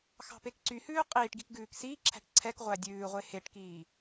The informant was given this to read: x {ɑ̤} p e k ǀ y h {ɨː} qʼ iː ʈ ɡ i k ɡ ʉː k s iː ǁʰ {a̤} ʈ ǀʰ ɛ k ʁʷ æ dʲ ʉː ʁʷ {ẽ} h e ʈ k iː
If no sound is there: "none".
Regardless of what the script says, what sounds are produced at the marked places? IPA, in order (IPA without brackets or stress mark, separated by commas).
ɑ̤, ʉː, æ̤, e